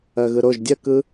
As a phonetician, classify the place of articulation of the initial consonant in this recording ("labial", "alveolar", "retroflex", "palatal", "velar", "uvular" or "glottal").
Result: velar